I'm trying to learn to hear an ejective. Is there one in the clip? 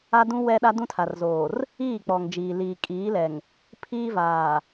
yes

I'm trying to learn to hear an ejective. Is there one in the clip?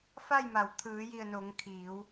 no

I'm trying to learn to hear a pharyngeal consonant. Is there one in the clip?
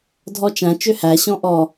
no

